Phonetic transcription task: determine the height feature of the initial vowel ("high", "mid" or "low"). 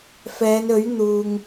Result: mid